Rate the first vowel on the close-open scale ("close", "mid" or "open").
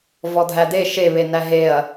mid